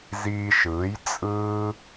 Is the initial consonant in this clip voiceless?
no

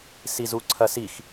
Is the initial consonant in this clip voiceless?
yes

